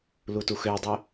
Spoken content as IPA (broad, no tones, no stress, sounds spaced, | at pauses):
l u t u x ø dˤ ø